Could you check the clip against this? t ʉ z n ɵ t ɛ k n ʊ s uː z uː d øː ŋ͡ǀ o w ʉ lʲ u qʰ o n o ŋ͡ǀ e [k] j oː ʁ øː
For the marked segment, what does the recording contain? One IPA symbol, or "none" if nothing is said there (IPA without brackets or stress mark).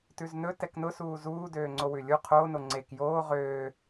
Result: k